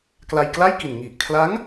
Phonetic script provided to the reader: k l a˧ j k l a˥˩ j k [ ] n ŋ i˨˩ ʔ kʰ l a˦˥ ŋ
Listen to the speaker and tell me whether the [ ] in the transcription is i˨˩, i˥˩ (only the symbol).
i˨˩